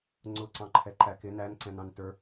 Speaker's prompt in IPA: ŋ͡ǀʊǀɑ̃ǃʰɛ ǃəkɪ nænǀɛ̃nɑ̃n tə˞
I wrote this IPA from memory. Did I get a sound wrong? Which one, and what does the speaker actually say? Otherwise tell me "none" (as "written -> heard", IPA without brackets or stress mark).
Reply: ə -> æ